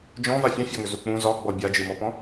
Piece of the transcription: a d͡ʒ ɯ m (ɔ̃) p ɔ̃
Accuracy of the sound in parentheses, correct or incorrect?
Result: incorrect